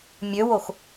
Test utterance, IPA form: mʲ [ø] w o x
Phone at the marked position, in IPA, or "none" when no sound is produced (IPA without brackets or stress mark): ø